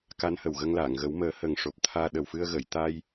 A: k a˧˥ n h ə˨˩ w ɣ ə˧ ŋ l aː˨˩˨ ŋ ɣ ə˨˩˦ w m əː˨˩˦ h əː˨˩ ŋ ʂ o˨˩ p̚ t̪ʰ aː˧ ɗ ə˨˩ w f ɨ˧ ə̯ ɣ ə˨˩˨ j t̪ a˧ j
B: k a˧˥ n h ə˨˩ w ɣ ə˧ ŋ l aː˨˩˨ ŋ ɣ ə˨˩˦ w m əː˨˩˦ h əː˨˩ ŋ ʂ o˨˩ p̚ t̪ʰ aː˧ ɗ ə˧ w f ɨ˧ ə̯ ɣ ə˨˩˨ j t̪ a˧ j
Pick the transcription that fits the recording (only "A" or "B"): A